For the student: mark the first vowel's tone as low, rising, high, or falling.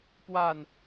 falling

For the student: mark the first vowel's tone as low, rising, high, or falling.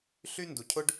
high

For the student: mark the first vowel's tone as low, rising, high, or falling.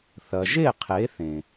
low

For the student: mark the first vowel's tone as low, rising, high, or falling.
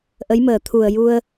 rising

